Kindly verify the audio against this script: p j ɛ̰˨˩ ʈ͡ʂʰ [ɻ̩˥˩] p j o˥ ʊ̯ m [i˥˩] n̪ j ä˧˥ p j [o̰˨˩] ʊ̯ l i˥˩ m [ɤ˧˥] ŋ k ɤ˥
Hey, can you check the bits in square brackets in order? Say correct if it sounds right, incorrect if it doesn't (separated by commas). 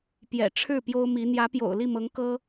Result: correct, incorrect, correct, correct